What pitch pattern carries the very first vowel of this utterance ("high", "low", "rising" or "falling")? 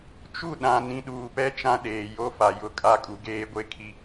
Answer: falling